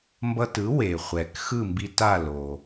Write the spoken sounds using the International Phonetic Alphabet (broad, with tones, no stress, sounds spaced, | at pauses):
m b ʌ˧ t ɯ˩˥ w e˩ χʷ ɛ˩ k x ɯ˥˩ m b i˧ t a˥˩ l o˩